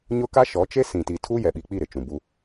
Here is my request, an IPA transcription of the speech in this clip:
ɲ ʊ˦ k a˦ ʃ ɔ˨˦ t͡ʃ e˦ s ĩ˨ t i˨ tʰ u˦ j ɛ˨ ɓ i˨ k͡p i˦˨ ɾ ɪ˨ t͡ʃ ũ˨ b u˦

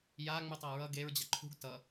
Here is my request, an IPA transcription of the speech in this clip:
j a ŋ͡m u tˤ a ɹ ʌ ɡ e ɹ d͡ʑ ʌ ǃʰ ṳ ɡ t ʌ

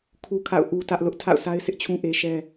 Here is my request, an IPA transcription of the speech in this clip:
kʰ u˦ kʰ a̰˦˨ ʊ̯ ʔ u˦ t ä˦ ʔ l ʊ˦ ʔ tʰ a̰˦˨ ʊ̯ sʰ a˦ ɪ̯ sʰ ɪ˦ ʔ t͡ɕʰ ũ˦ ʔ e˦ ʃ ɛ˦

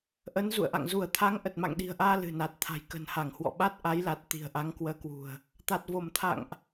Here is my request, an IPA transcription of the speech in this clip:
ʔ ə˨˦ n z ṵ˧˨ ə̯ ʔ a̰˧˨ ŋ z u˧˩ ə̯ t̪ʰ a˨˦ ŋ ʔ ə˨˩ t̚ m a̰˧˨ ŋ ɗ i̤˨˩ ə̯ ʔ aː˧ l ɨ̤˨˩ n a˨˩ t̚ t̪ʰ a̤˨˩ j k ə̤˨˩ n h a˧˩ ŋ h w ɔ̰˧˨ ɓ a˦˥ t̚ ʔ a˨˦ j l a˨˩ t̚ t̪ i̤˨˩ ə̯ ʔ a˨˦ ŋ k w əː˨˦ k w ṳ˨˩ ə̯ | t̪ a˨˩ t̚ v o˧˩ m t̪ʰ a̰˧˨ ŋ ʔ

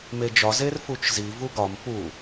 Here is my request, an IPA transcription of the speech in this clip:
m e d͡ʒ ɒ z e r f u t͡ʃ z i v u ɡ ɒ m p u

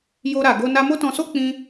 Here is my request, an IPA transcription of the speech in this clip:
j o˧ ɾ a˨ ɡ o˧ n a˧ m o˦ t ɔ̃˧ s o˦ k͡p ĩ˧

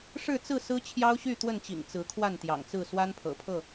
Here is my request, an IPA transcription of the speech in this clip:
ʂ ɻ̩˥˨ t͡s ɹ̩˥˨ s ɹ̩˦ t͡ɕʰ j ɑ˦ ʊ̯ ɕ y˥˨ t̪ w ə˥˨ n t͡ɕ ḭ˨˩ ŋ t͡s ɹ̩˨˦ kʰ w a˥˨ n t̪ j ɑ̰˨˩ ŋ t͡s ɹ̩˥˨ s w a˦ n pʰ ɤ̰˨˩ pʰ ɤ˥˨

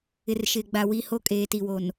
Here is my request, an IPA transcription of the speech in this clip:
ɪ˨ r ʃ ɪ˨ ɡ͡b a˨ w i˨ h o˦ kʼ eː˨ t i˨ w o˨ n

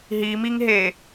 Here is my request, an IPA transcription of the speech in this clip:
ɦ i m i ŋ ɦ e

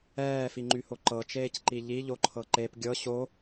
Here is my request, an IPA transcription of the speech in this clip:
ɛː f i ŋ͡ǃ y h o ǃ ɤ t͡ʃ eː c ǃ i ʎ i ʎ o ǃʰ ɤ ǃ e p ɡʲ ɤ ɕ o

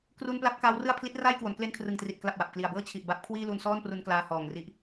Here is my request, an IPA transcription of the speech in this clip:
k r u˧ n p l a˦˥ p̚ k aː˦˥ w r ɯ˥˩ a̯ pʰ l i˦˥ t̚ r aː˥˩ j k w o˩˦ n k l e˧ n kʰ r ɯ˨˩ ŋ t r i˨˩ t̚ k l a˨˩ p̚ w a˨˩ p̚ k l i˨˩ a̯ b ɤː˥˩ t͡ɕʰ i˨˩ ʔ b a˦˥ p̚ kʰ w iː˥˩ l u˧ n s ɔː˥˩ n p r u˧ n k l aː˧ h ɔː˨˩ ŋ r i˦˥ ʔ

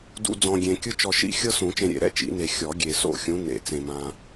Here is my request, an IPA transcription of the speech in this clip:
d ṵ˨ d͡z ɔ̃˨ ɡʲ ẽ˨ kʲ ɯ˦ t͡ʃ ɔ˨ ʃ ḭ˥˨ xʲ ɤ˦ s ũ˨˩˦ t͡ʃ ẽ˨ ɾʲ ḛ˨˩˦ ɾ ɛ̰˥˨ t͡ʃ ḭ˨˩˦ n e˨ xʲ ɔ˨˩˦ ɡʲ e˨ s o̰˥˨ xʲ ũ˨˦ n ḛ˨˩˦ t͡s ẽ˨ m ã˨

